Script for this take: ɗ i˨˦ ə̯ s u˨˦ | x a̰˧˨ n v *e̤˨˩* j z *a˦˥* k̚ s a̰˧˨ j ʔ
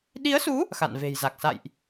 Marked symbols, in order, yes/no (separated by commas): yes, no